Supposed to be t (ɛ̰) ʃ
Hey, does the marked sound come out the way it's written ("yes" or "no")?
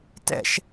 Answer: yes